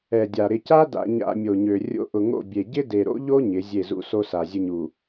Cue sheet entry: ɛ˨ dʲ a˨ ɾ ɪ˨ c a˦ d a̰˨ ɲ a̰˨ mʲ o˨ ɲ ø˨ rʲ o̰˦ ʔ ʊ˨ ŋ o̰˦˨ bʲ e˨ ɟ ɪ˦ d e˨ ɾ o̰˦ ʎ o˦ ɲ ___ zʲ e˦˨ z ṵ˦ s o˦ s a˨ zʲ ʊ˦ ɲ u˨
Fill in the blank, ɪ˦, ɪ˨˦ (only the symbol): ɪ˨˦